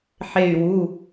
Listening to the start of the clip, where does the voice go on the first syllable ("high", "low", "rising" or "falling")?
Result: falling